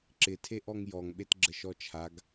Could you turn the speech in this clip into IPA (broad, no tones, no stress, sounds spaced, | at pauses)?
ǁ ɪ tʰ e ʔ ɔ ŋ j ɔ ŋ ɓ e t ɡ͡ǁ ə ʃ ɔ t͡ʃʰ a ɡ